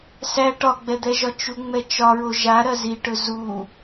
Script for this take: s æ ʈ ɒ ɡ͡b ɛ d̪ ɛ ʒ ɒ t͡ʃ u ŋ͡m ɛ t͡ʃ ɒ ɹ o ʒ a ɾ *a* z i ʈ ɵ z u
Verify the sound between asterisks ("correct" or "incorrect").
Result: incorrect